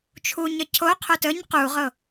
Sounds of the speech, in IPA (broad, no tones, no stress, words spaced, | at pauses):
t͡ʃʰuɲə cʰoqʰot əɲ quʁɤ